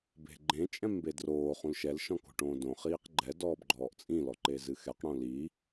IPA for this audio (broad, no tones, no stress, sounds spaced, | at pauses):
b e̤ ɡ͡ǃ ẽ t͡ʃʼ ɛ̃ m b e d r oː χ ũ l ʃ ɛ l ʃ ɔ̃ k o̤ ʈ õː d õ χ iː q ɡ͡ǃ ɛ d ɔː b ɡ͡ǃ ɔː ʔ t͡sʼ ĩ l ɔ ǃ e z ɨ x ɛ q ɽ õ l i